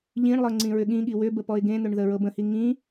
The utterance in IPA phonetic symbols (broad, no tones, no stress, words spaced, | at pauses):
ʎĩɳlˠɤ ŋ͡ǀĩɹʏɠĩɠi wʏbə pɔɪ̯ɡẽn̪ʏɳ ðəɹɤbə̃hi ŋĩ